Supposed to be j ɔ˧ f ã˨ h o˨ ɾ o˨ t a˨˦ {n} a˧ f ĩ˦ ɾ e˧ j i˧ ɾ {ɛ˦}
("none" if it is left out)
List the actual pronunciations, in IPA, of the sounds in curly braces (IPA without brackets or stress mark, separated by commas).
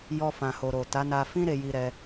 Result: n, ɛ˧